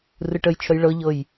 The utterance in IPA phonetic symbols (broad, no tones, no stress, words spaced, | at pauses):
rɯʈəjt͡ʃʰəj ɭɤʎɤj